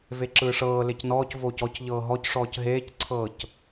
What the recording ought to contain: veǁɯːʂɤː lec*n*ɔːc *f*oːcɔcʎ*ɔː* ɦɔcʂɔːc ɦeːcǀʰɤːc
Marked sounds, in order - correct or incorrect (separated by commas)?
correct, incorrect, incorrect